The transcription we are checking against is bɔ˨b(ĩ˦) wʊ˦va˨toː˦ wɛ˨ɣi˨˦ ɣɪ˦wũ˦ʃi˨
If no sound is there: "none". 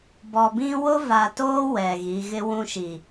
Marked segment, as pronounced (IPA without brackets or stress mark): ĩ˦